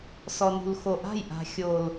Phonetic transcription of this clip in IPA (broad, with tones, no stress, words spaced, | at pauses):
sɔ˨nṳ˨lxo˨ʔa̤˦˨j ʔa̤˨xʲo˨l